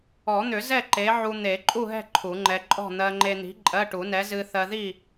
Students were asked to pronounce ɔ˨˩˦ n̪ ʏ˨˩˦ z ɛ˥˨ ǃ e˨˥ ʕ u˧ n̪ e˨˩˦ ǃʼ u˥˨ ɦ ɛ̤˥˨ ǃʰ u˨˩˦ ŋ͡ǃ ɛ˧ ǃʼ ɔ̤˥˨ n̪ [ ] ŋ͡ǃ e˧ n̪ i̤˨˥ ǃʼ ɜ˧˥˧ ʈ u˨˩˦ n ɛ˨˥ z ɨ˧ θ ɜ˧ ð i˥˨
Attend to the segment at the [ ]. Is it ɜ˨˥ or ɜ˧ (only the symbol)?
ɜ˧